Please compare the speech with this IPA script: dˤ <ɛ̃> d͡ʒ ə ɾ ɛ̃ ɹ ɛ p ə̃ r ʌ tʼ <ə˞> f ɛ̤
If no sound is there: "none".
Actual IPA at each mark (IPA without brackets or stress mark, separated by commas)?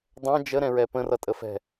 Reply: ɛ̃, ə